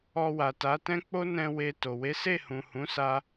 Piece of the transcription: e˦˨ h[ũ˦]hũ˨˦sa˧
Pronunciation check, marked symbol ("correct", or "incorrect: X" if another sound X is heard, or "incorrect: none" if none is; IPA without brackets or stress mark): incorrect: ũ˨